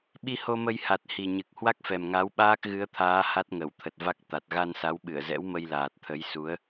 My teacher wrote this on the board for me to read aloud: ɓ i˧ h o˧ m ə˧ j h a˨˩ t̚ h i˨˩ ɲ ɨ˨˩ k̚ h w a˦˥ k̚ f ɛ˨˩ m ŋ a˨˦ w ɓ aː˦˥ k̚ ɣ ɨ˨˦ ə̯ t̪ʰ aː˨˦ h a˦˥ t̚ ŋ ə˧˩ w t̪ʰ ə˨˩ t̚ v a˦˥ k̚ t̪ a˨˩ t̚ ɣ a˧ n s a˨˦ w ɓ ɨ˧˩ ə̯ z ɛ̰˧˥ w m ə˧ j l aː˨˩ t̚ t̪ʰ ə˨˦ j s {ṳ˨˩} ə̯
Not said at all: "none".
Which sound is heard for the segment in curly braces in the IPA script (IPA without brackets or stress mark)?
u˨˦